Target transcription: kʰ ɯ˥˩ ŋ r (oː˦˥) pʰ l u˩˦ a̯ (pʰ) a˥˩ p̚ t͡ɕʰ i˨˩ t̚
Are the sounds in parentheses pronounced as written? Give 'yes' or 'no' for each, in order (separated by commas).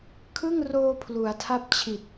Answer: no, no